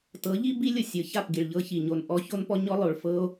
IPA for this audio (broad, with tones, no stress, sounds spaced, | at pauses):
t ɤ˨˦ ʎ i˦ b i˦ lʲ o˨ sʲ ɤ˨ ç a˦˨ p ɡ i˨ ɭ ʎ ɤ˦ ç i˨ ɲ o˨ n ʔ ɔ˧ ç o˦ n p ɔ˦ ɲ ɔ˦ lˠ o˨ ɭ f ɤ˦ o̯